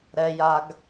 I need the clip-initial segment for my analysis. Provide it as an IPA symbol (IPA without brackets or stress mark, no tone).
ɾ